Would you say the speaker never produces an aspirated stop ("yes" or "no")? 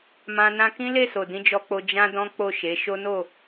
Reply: yes